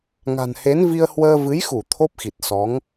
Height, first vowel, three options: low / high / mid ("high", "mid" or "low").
low